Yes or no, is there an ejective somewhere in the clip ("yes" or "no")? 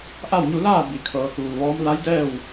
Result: no